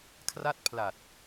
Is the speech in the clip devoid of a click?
yes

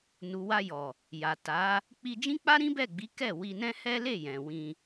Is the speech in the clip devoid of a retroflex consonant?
yes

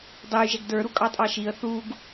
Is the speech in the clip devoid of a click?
yes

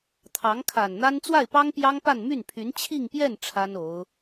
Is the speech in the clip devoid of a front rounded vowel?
no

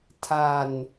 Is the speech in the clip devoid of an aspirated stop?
no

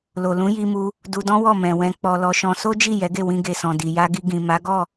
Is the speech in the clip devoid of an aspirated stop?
yes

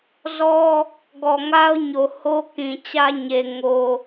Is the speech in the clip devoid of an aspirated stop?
yes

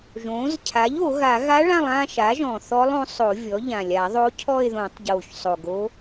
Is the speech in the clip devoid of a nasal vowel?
no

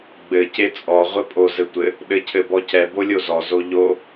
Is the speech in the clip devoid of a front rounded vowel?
yes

